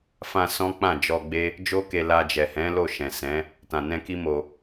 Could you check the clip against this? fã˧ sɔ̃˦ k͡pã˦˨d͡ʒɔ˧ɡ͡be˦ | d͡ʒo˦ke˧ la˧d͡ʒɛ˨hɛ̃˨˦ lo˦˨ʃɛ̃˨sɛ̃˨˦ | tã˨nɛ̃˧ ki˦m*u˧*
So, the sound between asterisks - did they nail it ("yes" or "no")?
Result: no